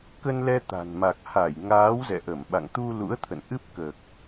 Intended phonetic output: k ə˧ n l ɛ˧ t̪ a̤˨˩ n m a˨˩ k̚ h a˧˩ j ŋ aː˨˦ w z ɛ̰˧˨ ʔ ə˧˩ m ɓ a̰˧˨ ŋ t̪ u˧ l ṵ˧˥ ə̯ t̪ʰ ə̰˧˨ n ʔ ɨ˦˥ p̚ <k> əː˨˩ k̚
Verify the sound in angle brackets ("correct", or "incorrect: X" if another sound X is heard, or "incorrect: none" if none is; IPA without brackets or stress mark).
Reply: correct